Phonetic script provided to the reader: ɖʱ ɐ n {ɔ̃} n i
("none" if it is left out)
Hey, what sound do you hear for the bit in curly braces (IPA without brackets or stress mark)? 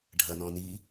ɔ̃